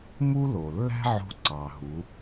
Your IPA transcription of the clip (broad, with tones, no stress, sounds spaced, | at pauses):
m u˥ l o˩ lː æ̤˥ ʕ o̤˧ ǀ ɑ˩ ɦ u˩˧